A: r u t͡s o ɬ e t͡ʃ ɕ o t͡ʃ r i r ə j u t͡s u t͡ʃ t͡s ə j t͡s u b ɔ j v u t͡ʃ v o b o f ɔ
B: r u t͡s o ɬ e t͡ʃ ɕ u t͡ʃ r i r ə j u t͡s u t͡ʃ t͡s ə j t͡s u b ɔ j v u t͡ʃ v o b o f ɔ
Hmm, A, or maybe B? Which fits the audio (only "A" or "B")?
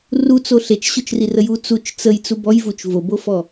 A